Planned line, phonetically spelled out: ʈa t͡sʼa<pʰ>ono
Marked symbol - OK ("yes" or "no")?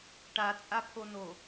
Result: yes